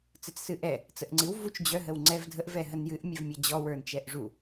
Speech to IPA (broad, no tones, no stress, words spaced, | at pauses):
t͡sɨt͡ssɨʔɛ | t͡səʔŋ͡ǀɨw vut͡ʃ d͡ʑœ ɦəwŋ͡ǀɛv dʱəʔ vɛɦənjɨʔ mʲɛvmʲad͡ʑɔ wə˞nt͡ʃɛʔʐu